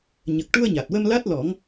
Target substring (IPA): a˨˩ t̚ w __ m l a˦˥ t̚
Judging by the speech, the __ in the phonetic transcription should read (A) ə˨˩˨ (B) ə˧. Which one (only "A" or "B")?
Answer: B